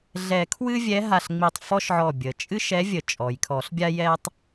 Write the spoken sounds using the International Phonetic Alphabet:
ɮ ɛ˨˩˦ kʰ w ɨ˥ vʲ ɛ˧˥ ɦ a˧˩ ɬ ŋ͡m i˧˩ tˤ f ɔ˥ ʃ ʕ ɔ˧˩ bʲ ə˩ t͡ʃʼ ɨ˥ ʃ ɛ˧˥ vʲ ə˨˩˦ t͡ʃʼ ɔ˩ j kʰ ɔ˨˩˦ ɬ bʲ a˥ j ɛ˥ tˤ

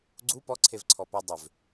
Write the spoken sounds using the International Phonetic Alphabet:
ɡ͡ǀ u p ɔ ǀʰ e v ǀʰ ɔ p ʏ dˤ ʏ v

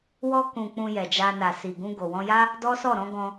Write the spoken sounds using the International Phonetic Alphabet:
w ɔ˧ k ũ˨ k͡p ũ˧ j ɛ˨ d͡ʒ a˧ n a˨ s i˨ ɡ ũ˧ ɡ o˨ w ɔ̃˧ j a˦ | d ɔ˦ s ɔ˦˨ ɾ ɔ̃˨˦ ɡ ɔ̃˧

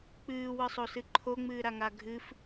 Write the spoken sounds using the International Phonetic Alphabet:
k͡p ɨː w ɯ sˤ o s ɨ ǃʰ o ŋ͡m ɨː ɾ a ŋ a ɡʱ ɨ f

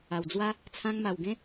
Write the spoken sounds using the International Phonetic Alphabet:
a˨˩ w d͡z w a˦ | t͡sʰ ã˧ ŋ m a˨˩ w ɡ ẽ˦

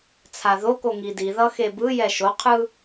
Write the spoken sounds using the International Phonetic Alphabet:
t͡sʰ a ð o k o ŋ i d i ð ʌ x e b ɯ j ɛ ʃ o qʰ ɯ

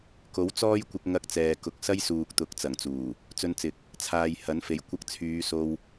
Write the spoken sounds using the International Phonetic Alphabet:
k o˨˥ w t͡s ɔː˥ j kʷ ɪ˧ k̚ ŋ ɐ˧ k̚ t͡s ɛː˨ k ʊ˨ k̚ s ɐ˥ j s uː˨ k̚ t̪ ʊ˨ k̚ t͡s ɐ˨˩ ŋ t͡s uː˨˩ | t͡s ɵ˧ n t͡s ɪ˨ k̚ | t͡sʰ aː˨ j h ɐ˨˥ n f e˨˩ j kʷ ɐ˧ k̚ t͡sʰ yː˨˧ s o˧ w

